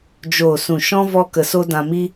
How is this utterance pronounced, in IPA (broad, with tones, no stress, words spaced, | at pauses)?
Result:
d͡ʒoː˨sũ˨ ʃɔ̃˦ vɔ˦kə˧so˦ dã˧mi˦